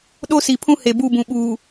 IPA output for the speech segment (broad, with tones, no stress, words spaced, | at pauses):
ɗo˦si˨pʰũ˦ he˨bu˦˨bũ˨ɓuː˨